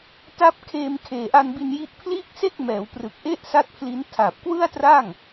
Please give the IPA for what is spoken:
t a˦˥ p̚ kʰ eː˧ m kʰ eː˨˩ ʔ a˧ n b i˧ n j i˦˥ ʔ pʰ l iː˥˩ k̚ s e˥˩ k̚ m ɛː˩˦ w p r ɯ˨˩ k̚ ʔ e˥˩ ʔ s a˦˥ t̚ pʰ l i˦˥ n tʰ a˨˩ p̚ k w ɯ˥˩ a̯ t r a˥˩ ŋ

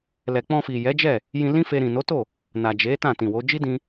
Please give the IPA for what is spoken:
l ɛ˨ k͡p ɔ̃˧ f i˨ j ɛ˨˦ d͡ʒ ɛ˦˨ | j ĩ˧ l ĩ˦ f e˧ ɾ ĩ˨ n o˨˦ t o˦˨ | n a˨ d͡ʒ e˨˦ t ã˦˨ t ĩ˨ w o˨˦ d͡ʒ i˦ d ĩ˧

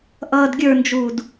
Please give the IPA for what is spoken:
ʔ ʌː d ɡʲ ə˞ n d͡ʒ uː d

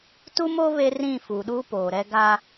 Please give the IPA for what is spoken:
t u˦ m oː˦ β e˦ r ĩ˦˨ f u˨ ɗ uː˦ p oː˨ ɾ ɛ˦ ɡ a˦

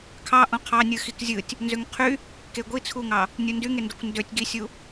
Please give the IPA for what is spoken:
kʰ ɑ ʔ õ qʰ ɑ nʲ ɯ x i k zʲ ɯ tʲ | n z ø ŋ qʰ y | k e ɡʷ i t͡sʰ u ŋ ɑ | nʲ u n d y ŋ e n d o kʷ n d ø tʲ ɡ i sʲ u

